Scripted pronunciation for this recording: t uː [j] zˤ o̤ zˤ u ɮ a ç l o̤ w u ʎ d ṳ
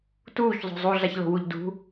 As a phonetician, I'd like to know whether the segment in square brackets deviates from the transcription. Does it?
yes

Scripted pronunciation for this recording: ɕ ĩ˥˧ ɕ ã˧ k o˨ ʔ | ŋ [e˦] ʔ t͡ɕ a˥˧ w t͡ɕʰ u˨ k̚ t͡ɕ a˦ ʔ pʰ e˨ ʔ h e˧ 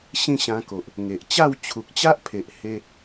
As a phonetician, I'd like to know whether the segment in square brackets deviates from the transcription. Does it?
yes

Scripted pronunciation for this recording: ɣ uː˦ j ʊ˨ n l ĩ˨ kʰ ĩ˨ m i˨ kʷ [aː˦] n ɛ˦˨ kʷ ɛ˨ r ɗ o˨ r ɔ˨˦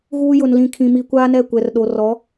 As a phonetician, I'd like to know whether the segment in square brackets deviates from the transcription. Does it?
no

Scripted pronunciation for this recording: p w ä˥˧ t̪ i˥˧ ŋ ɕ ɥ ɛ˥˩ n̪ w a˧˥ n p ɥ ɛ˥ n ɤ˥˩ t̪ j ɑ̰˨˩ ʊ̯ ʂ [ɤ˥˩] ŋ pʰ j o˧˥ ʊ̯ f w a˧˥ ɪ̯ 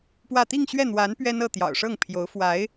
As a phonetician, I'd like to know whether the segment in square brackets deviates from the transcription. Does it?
no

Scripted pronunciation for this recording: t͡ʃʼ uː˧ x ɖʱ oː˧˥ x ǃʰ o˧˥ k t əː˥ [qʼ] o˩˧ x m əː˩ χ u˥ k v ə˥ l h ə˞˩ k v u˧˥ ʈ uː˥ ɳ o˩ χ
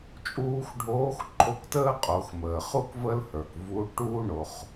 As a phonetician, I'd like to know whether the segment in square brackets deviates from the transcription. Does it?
no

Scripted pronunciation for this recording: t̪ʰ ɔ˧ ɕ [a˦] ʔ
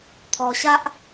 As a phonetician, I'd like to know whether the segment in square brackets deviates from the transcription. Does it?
no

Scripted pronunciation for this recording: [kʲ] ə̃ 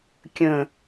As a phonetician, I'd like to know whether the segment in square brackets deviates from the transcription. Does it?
no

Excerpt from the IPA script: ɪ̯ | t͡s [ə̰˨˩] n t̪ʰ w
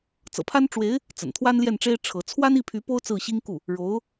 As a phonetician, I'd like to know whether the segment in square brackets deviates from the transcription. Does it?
no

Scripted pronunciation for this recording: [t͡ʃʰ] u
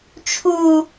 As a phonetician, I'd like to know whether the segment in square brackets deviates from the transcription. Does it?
no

